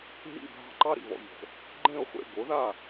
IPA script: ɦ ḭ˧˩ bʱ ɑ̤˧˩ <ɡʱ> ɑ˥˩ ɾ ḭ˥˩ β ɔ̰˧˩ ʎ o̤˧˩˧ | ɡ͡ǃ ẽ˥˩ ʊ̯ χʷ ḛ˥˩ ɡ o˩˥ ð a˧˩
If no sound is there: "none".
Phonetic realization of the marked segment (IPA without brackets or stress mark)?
ǃ